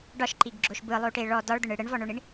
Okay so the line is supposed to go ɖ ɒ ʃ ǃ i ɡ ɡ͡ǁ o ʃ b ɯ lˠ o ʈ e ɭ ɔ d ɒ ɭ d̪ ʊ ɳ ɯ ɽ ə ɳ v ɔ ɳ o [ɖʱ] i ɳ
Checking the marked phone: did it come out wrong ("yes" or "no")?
yes